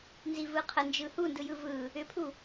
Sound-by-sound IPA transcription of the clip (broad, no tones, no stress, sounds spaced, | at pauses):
n z i v ɯ qʰ ə n d͡ʒ ɯ h u n d ɯ j ɯ v ɯ | ʏ pʰ u